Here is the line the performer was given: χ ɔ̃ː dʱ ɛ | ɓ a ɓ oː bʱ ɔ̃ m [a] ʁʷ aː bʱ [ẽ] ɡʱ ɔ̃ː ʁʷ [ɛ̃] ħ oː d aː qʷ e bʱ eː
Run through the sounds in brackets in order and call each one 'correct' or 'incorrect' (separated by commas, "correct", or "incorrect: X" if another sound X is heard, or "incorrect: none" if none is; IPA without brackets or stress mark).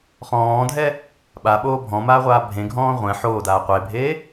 incorrect: aː, correct, correct